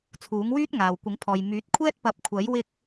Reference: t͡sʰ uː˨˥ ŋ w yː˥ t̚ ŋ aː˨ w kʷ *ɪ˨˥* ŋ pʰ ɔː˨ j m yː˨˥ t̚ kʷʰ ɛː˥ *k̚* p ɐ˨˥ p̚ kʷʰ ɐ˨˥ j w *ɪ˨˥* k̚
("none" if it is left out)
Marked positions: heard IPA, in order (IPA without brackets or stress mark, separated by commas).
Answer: ɪ˨˥, t̚, ɪ˥